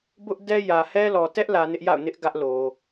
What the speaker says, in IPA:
bʊ˦ʔdɛ˦ jä˨hɛ˦lɔ˨ tɛ˦ʔlä˨ nɪ˦ʔja̰˦˨ʊ̯ nɪ˦ʔ ɡä˦ʔlo˨

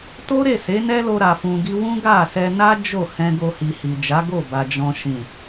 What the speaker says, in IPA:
to˦ɾe˦˨se˨˦ nɛ˦lo˧ɾa˨fũ˨ ɡi˧wũ˦ ɡa˦˨sɛ˧na˦ d͡ʒo˦˨hɛ̃˧ ɡo˧hi˨hi˨d͡ʒa˨˦ ɡo˦˨ba˨ d͡ʒɔ̃˨ʃĩ˨

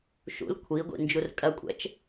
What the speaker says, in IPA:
ʃṵl kʷʰiɡʷḭ nd͡ʒurkʼɐkʷʼɛ̰t͡ʃ

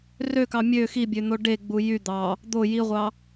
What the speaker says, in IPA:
røkɑ mʲø xibʲøn̪o ɖeɡ͡bu jy d̪ɑ | d̪o jiʁʷɑ

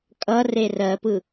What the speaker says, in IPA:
kʼʌre rɜpɯ

